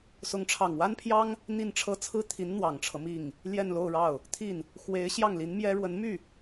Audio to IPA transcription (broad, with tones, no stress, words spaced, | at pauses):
sʊ˧˥ŋʈ͡ʂʰɑ˨˩ŋwa˥npʰjɑ˥ŋ | n̪i˥˩nʈ͡ʂʰɤ˥ t͡sʰɹ̩˥˩t̪ʰi˧˥n n̪wɑ˨˩ŋʈ͡ʂʰɤ˦ mi˥˩ŋ | ljɛ˥˧nlo˥˧ʊ̯ɻɑ˥˩ʊ̯ | t̪ʰi˥˩n | xwe˧˥ɪ̯ ɕjɑ˥˩ŋli˧˥nmjɛ˥ ɻwə˧˥nmy˥˩